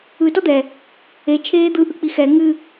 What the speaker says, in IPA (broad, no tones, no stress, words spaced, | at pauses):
ɯ tɔd̪ɛ | e t͡ʃʰeːd̪ɯ ʔɯk͡pixɛ ŋɨ